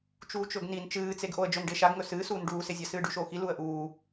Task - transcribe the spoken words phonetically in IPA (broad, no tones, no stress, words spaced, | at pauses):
t͡ʃuːt͡ʃɵɡnin t͡ʃɨːt͡seɡʔoə̯ d͡ʒɵnɖe ʃaɡŋɵ sɨːsuːn ɖuːsezʲa sɨːɖʉʃoːxi luə̯ʔuː